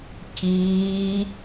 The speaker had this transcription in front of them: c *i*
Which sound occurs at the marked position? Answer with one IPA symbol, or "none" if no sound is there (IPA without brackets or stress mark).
iː